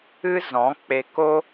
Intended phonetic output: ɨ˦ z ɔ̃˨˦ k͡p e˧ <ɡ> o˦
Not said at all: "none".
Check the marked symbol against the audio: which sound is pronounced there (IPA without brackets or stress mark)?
k